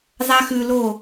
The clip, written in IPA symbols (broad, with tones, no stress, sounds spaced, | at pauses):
zˤ a˦ x ʉ˧ l o˦˨